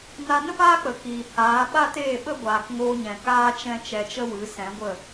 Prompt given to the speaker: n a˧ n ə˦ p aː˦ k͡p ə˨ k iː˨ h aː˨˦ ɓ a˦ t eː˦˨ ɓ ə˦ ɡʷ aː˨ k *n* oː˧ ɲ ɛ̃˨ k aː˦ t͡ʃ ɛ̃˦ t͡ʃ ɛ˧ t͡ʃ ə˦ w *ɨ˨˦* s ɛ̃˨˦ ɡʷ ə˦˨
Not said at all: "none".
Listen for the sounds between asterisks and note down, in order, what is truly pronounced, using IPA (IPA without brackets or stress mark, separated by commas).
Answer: ŋ, ɨ˨˦